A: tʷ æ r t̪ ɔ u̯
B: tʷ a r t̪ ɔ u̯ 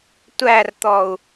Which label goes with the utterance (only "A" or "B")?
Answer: A